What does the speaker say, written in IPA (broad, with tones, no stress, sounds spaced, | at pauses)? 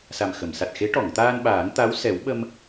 s a˨˩ m x ə˨˩˨ m s a˨˩ t̚ x e˧˥ ʈ ɔ˨˩˨ ŋ t̪ aː˧ n ɓ aː˨˩˦ ŋ t̪ a˧˥ w s ɛ˨˩˦ w ɓ ə˧ m